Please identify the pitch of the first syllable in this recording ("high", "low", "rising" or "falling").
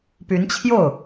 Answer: rising